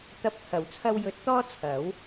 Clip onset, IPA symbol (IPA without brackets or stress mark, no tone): t̪